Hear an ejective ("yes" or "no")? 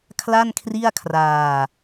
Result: no